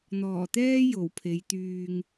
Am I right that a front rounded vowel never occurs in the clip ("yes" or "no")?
no